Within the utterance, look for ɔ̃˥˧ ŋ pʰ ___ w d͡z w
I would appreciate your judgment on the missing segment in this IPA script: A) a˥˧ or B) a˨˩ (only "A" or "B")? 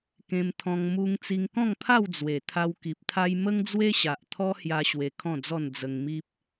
A